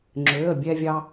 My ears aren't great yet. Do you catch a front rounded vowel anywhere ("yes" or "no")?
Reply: yes